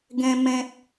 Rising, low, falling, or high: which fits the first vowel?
high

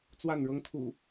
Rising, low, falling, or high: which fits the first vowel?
falling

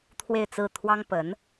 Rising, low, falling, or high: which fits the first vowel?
falling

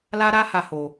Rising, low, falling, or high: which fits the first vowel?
high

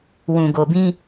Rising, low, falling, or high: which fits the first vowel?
low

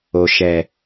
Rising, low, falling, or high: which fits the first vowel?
low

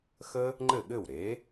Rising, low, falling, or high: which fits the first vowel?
high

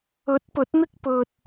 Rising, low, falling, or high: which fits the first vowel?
rising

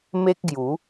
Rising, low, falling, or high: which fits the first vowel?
high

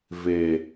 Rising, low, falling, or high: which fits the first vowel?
low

